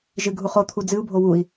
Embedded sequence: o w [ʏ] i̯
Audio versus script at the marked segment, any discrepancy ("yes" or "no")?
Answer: yes